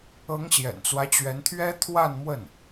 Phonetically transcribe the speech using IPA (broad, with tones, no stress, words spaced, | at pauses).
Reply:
ɤ˧˥ŋɕjɛ̰˨˩nt͡swä˦t͡ɕɥɛ˧˥n t̪ʰɥɛ˥t̪ʰwa˥˧nmwə˥˩n